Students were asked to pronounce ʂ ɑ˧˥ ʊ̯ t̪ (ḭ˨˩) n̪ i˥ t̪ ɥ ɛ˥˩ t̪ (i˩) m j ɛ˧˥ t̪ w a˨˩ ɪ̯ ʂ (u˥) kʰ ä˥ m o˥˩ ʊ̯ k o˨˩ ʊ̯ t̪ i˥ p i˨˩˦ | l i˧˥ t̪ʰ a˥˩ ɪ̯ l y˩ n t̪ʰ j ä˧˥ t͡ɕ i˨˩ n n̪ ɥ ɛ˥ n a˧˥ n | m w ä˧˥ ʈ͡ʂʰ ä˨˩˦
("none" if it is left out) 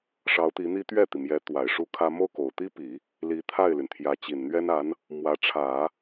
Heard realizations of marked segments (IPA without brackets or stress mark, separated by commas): i˧˥, i˩, u˥